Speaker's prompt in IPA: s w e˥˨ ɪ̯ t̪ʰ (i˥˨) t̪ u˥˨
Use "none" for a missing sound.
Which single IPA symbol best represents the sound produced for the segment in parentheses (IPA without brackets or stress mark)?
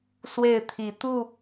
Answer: i˨˦